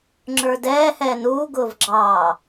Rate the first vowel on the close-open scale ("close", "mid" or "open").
mid